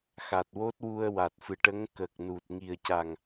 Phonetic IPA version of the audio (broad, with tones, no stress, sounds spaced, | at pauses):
x a˨˩ t̚ w o˦˥ t̚ w u˧ ə̯ w a˨˩ t̚ f ɨ˨˩ ʈ ə˧˥ ŋ k ə˨˩ k̚ n u˨˩ t̚ ŋ i˨˩ ə̯ c a˨˩ ŋ